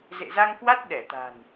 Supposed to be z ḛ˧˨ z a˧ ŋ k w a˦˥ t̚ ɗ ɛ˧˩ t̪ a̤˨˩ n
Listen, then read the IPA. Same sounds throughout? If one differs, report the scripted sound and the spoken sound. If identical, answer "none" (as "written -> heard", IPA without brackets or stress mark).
none